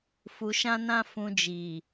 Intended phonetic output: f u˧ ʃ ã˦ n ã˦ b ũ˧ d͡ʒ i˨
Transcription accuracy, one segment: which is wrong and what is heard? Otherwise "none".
b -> f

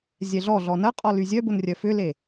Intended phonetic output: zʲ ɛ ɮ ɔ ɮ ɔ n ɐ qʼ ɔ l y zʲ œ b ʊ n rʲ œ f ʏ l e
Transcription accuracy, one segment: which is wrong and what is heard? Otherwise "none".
none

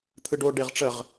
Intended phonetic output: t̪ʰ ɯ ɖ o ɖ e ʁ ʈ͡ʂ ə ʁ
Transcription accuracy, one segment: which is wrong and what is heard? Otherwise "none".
none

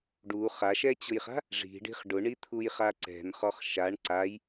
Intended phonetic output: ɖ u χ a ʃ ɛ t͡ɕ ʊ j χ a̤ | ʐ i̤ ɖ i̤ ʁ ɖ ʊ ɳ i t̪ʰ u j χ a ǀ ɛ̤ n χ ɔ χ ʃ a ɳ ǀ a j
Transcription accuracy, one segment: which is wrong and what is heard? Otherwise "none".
ʁ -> χ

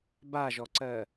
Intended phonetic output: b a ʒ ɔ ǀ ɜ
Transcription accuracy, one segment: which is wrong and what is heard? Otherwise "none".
none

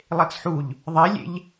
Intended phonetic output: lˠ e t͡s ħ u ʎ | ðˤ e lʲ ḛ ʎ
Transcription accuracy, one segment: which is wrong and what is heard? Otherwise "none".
none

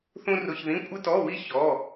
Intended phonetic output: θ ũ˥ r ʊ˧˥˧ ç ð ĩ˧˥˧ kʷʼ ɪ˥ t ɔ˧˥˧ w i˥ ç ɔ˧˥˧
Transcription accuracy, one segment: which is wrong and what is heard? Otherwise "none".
none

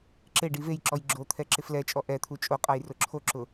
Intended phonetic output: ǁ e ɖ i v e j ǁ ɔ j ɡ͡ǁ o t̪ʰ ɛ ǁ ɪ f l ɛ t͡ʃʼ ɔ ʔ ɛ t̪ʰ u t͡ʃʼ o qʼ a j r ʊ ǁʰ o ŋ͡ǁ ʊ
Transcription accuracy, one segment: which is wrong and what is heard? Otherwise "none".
ŋ͡ǁ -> ǁ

